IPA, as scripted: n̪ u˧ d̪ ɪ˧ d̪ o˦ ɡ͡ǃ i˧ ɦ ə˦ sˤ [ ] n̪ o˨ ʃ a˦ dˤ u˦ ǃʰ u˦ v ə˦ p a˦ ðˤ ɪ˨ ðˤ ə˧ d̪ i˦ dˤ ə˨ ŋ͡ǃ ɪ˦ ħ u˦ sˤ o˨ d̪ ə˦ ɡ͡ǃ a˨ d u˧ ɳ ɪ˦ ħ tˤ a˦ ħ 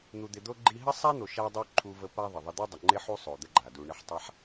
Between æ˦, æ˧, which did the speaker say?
æ˦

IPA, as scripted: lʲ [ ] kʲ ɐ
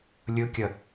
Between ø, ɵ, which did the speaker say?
ɵ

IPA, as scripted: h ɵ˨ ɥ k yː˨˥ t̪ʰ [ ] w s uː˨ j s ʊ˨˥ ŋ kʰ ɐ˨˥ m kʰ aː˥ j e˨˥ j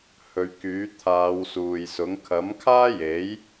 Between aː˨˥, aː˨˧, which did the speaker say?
aː˨˧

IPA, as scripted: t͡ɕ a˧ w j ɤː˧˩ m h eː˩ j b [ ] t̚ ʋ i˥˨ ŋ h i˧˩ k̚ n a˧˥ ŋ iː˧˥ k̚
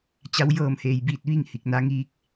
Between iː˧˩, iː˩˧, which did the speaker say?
iː˧˩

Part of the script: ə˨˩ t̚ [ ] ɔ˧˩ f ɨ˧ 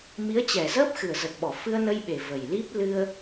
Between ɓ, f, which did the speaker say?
ɓ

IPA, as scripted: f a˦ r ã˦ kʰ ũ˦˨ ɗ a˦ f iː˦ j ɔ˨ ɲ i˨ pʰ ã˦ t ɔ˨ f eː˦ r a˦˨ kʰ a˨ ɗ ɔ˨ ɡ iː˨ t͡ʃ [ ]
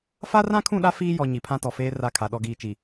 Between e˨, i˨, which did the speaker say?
i˨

